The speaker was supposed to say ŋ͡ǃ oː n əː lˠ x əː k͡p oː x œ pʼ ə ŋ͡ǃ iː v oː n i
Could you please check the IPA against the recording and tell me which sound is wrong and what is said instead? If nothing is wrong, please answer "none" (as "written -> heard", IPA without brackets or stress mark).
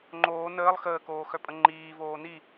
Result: k͡p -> k